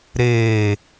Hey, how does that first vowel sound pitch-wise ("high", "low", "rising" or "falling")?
low